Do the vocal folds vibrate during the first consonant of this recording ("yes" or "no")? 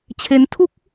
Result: no